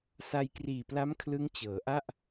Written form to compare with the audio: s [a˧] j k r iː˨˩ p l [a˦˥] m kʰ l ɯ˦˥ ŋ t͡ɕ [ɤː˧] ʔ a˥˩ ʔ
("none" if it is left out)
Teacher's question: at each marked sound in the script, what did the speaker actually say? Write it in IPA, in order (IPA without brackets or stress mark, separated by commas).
a˧, a˦˥, ɤː˩˦